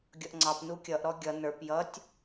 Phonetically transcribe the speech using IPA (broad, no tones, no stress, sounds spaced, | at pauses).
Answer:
ɡʲ ʌ ʔ ŋ͡ǀ ɑ p n u kʲ ʌ ʔ ɾ ɔ ɡʲ ʌ n ə˞ p j ʌ tʲ